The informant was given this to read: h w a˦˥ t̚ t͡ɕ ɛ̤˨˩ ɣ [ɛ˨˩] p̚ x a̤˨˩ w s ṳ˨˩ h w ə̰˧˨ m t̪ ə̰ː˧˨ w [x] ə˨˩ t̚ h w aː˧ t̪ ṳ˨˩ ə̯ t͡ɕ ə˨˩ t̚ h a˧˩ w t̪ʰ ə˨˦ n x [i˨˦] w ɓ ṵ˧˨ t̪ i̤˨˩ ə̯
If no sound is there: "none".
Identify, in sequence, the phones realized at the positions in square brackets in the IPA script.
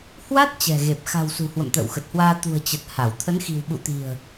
e˨˩, x, i̤˨˩

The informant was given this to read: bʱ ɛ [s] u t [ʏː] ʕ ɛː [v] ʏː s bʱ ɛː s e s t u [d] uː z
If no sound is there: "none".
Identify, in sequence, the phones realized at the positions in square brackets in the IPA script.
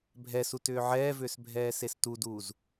s, ʏː, v, d

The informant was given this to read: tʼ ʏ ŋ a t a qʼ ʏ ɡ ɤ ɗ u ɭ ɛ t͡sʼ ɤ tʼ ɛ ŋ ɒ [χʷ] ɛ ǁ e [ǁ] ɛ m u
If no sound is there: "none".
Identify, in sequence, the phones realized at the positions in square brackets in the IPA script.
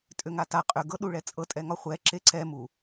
χʷ, ǀ

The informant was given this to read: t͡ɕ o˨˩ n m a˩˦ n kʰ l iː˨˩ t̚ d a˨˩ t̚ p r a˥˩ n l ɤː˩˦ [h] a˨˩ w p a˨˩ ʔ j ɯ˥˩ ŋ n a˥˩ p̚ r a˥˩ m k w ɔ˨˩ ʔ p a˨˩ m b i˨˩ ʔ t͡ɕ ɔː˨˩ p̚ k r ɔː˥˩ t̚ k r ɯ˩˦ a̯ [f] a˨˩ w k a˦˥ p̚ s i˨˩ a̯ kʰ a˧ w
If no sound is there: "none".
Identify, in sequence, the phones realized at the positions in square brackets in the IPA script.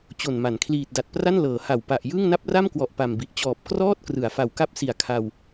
h, f

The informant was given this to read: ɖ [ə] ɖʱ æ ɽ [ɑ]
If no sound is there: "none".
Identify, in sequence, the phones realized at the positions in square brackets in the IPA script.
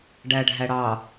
æ, ɑ

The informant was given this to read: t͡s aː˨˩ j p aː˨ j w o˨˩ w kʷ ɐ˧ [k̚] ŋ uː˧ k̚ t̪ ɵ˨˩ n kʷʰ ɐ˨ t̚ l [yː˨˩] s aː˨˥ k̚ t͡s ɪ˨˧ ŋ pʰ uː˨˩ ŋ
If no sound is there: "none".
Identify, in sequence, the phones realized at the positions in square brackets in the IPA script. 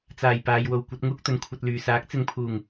t̚, yː˨˩

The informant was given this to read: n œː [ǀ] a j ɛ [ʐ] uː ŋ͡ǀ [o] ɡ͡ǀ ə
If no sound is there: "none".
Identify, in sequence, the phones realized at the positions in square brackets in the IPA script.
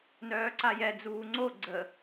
ǀ, d͡z, o

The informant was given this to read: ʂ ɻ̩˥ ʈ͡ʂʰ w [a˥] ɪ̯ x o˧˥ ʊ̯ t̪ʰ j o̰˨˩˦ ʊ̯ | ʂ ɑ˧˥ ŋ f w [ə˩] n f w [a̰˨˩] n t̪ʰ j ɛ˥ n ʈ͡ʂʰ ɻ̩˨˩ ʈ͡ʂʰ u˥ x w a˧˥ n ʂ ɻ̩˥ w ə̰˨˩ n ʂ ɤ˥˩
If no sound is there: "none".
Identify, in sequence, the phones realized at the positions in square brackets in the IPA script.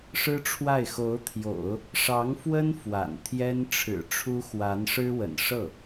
a˥˩, ə˥, a̰˨˩

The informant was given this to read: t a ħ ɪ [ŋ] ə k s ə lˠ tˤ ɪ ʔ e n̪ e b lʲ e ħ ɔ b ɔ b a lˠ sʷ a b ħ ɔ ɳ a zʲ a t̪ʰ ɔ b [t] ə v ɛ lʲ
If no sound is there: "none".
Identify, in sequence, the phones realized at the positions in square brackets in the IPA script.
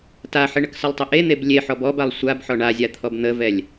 ɳ, n̪

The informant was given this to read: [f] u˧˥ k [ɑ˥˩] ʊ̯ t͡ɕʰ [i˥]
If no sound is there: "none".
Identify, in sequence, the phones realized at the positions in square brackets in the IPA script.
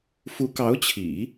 f, ɑ˧˥, ḭ˨˩˦

